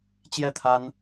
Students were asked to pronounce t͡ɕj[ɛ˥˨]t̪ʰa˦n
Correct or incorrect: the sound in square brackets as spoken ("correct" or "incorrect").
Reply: correct